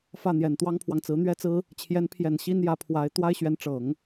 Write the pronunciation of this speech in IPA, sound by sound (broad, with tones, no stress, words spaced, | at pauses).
fä˥˩n̪jɛ˨˩n t̪wɑ˥ŋpʰwɑ˨ŋt͡sɹ̩˧˥ n̪ɥɛ˥t͡sɹ̩˥ | t͡ɕʰjɛ˧˥npʰjɛ˨˩n ɕi˥n jä˧˥pʰwa˧˥ɪ̯ t̪wa˥ɪ̯ɕɥɛ˧˥n ʈ͡ʂɤ˨˩˦ŋ